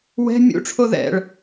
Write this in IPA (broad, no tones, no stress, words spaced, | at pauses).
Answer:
wɛ̤ mʲṵʈ͡ʂʰo ðɛ̰ɭ